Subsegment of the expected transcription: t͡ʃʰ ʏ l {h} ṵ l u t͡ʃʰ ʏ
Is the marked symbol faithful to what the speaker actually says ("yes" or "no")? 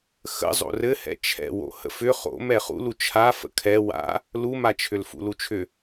no